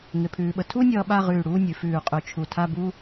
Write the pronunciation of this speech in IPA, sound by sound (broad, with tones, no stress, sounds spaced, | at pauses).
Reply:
ŋ ɪ˧ pʰ ʉː˧ ɓ ə˧ tʰ u˥ nʲ ʌː˧ ɓ a˥˧ ʁ ʉː˧˩ ɽ uː˥˧ nʲ ʉ˩˧ f ʉː˧˩ qʼ ʉ˧˩ t͡ʃʰ u˧˩ tʰ a˥˧ b u˥